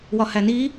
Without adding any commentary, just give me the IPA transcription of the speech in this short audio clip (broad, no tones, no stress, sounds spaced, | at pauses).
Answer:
w ɒ h æ n i